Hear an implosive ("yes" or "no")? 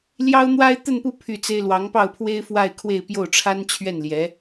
no